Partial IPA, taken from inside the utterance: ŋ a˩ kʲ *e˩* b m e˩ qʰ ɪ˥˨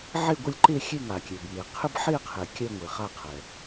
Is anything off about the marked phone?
no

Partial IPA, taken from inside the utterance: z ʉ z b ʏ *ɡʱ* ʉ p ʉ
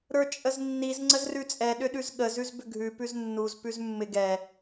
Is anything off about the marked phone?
no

